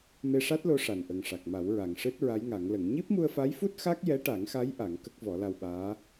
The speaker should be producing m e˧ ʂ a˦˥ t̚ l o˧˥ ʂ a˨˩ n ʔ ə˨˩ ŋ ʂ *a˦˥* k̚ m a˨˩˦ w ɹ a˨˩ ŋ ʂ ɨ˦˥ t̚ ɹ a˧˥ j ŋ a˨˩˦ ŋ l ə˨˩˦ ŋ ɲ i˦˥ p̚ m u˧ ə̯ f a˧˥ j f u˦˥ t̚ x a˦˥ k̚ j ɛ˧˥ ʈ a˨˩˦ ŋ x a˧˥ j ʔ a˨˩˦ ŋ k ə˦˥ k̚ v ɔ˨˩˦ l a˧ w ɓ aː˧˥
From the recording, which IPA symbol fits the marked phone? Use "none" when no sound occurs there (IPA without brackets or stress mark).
a˨˩